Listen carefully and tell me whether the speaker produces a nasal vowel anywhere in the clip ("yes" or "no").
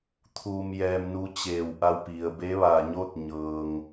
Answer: no